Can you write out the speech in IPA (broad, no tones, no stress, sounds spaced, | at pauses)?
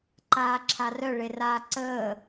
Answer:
ǃ aː ǁʰ a r œ ɭ e r aː ǀ əː